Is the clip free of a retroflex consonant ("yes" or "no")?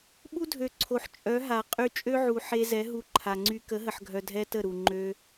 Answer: yes